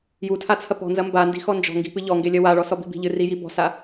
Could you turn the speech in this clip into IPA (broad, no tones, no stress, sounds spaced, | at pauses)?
j u tʰ a t͡sʰ ɐ p ɔ̤ n z ɐ m b a n d i̤ x ɔ n d͡ʒ ɔ̤ ŋ ɡ i̤ p ɨ ʎ ɔ ŋ ɡ e lʲ ɐ w a ɭ ɔ s ɔ b i̤ b i̤ ʎ ɨ r i j i b ɔ̤ s a